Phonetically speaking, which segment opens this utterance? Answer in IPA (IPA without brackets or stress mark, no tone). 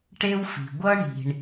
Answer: ʈ